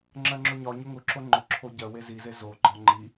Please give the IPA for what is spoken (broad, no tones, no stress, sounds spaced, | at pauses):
ŋ͡ǁ ɜ ŋ͡ǁ ʊ ɲ ɒ ɲ ʊ ŋ ʊ ǁ o ŋ͡ǃ ʊ ǁʰ o ɟ ɜ w e z i z e z o ɡ͡ǃ ɒ ŋ͡ǃ i